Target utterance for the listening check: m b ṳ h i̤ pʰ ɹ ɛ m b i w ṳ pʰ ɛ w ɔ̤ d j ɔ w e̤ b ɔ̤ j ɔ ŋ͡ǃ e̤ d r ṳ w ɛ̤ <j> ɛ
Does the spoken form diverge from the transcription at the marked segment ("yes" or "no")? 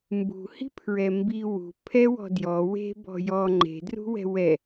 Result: yes